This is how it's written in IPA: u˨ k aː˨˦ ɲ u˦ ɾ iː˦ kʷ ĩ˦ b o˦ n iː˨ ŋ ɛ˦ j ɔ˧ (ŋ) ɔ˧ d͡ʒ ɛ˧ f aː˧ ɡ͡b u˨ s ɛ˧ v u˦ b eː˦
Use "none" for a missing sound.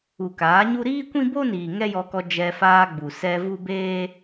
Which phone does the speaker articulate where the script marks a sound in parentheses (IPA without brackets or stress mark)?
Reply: k